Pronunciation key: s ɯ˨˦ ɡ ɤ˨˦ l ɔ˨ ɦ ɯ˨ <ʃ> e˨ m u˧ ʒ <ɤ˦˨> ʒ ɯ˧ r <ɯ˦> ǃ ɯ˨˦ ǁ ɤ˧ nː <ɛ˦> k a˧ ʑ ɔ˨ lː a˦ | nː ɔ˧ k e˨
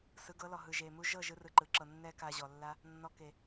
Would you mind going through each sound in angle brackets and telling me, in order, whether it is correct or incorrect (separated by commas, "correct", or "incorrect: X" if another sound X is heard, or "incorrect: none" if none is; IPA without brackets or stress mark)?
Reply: incorrect: ʒ, correct, incorrect: ɯ˧, correct